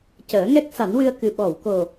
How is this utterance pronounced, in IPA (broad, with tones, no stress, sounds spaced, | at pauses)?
c əː˨˩˦ ŋ ɛ˦˥ k̚ s a˨˩˦ n w ɨ˧ ə̯ k ɨ˧ ɓ ɔ˨˩˨ w k o˨˩